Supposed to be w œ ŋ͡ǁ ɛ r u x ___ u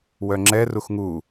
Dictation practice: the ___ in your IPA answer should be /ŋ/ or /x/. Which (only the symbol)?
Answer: ŋ